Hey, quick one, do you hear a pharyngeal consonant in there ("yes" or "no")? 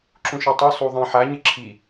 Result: yes